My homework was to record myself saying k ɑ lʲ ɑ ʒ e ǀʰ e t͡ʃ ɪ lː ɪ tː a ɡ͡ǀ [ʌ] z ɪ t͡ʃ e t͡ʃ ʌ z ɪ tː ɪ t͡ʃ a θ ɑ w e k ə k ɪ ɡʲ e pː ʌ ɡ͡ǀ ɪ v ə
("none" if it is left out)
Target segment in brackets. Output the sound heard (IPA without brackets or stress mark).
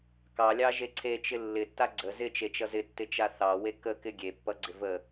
ə